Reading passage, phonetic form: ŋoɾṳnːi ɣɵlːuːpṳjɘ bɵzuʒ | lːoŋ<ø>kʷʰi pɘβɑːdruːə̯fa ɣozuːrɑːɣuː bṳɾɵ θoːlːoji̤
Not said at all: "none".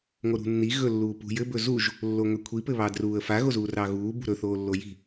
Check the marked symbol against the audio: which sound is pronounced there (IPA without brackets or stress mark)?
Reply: ø